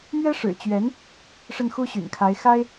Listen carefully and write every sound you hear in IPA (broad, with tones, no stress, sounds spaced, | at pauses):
m ɥ ɛ˥ ʂ ɻ̩˨˩ t͡ɕ ɥ ɛ˧˥ n | ʂ ə˥˩ n x u˥ ɕ y̰˨˩ n kʰ a˧˥ ɪ̯ x a˥ ɪ̯